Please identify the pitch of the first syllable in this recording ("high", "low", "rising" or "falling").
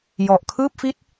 low